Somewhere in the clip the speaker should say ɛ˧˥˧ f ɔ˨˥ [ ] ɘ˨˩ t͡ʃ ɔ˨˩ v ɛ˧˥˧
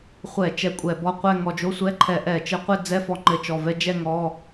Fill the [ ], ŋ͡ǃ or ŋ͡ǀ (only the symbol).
ŋ͡ǃ